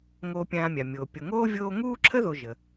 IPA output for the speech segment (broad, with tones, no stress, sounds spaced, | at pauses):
ŋ oː˨ pʲ ãː˨ mʲ a˩ mʲ oː˩ pʲ o˩ ŋ oː˥ vʲ oː˦ ŋ uː˥ ǁʰ ə˥ ð o˨ ʒ ə˩